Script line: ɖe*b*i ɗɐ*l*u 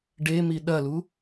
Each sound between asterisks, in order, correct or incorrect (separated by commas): incorrect, correct